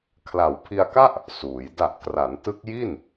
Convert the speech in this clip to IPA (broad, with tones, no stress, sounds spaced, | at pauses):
kʰ l a˨˩ w pʰ i˧ a̯ k a˥˩ ʔ | s uː˩˦ j d a˨˩ ʔ k r a˩˦ n t ɯ˦˥ k̚ j i˥˩ n